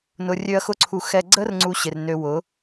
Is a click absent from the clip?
no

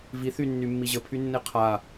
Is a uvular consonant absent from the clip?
no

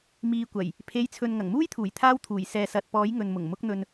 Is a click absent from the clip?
yes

